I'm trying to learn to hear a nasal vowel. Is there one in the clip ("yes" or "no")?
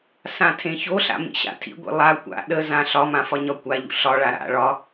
yes